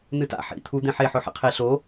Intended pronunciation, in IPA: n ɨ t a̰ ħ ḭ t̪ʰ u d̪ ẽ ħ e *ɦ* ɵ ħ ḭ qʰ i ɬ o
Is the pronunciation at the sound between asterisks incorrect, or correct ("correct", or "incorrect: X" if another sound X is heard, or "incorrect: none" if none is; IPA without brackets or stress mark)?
incorrect: ħ